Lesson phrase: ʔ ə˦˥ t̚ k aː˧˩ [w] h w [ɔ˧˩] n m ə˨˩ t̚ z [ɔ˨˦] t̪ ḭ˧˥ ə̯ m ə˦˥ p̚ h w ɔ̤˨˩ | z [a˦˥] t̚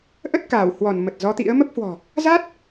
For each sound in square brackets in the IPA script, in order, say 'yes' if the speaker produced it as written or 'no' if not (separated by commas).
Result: yes, yes, yes, yes